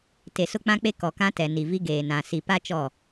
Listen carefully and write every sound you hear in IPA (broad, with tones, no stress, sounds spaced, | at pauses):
t e˨ s ʊ˦ k͡p ã˦ k͡p e˦ k ɔ˨ k ã˦ t ɛ˨ n i˨ v i˦ ɡ eː˨ n ã˨ s i˨ p a˦ t͡ʃ ɔ˦˨